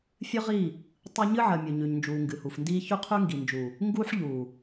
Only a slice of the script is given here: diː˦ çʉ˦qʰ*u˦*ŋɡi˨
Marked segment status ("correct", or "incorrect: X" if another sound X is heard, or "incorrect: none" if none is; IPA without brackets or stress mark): incorrect: ʉ˦